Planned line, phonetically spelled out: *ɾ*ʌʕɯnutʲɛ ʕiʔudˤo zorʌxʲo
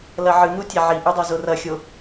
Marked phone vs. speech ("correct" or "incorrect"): incorrect